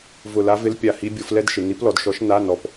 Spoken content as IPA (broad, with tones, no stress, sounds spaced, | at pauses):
v ʊ˦˨ l a˦˥ v ɪ˦˥ l pʲ a˦˨ h i˦˥ bʲ o˨˦ f l ɛ˦˥ d ʃ ɪ˨ n i˨˦ p l ɔ˨ d ʃ ɔ˨˦ ʃ n a˧˥˧ n ɔ˨ p